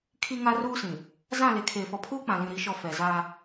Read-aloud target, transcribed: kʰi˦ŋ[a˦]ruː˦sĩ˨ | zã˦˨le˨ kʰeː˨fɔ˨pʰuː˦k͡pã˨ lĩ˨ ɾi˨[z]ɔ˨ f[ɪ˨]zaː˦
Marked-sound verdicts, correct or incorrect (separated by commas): correct, incorrect, incorrect